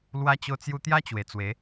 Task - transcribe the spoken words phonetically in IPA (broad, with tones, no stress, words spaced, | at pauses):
lwa˧t͡ɕo˧t͡sju˧t̪ja˦ t͡ɕwe˨˩t͡swe˨˦